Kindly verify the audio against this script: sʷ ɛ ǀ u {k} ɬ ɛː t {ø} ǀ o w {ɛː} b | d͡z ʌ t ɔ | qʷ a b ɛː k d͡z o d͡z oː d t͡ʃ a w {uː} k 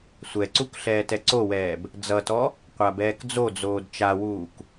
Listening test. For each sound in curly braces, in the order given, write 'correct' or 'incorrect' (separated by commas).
correct, incorrect, correct, correct